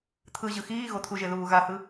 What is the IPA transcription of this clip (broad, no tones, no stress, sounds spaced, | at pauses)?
t̪ʰ ɯ ʑ ɯ x iː ɣ o t̪ʰ u ʒ e ð uː ɣ a h ɯ